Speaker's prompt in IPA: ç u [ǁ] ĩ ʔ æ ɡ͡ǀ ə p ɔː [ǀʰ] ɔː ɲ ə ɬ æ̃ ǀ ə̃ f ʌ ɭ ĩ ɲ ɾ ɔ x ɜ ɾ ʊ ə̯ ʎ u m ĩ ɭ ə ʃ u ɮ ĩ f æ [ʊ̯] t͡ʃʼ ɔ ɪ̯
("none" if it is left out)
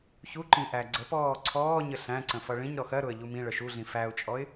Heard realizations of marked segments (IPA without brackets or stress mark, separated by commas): ǃ, ǀʰ, ʊ̯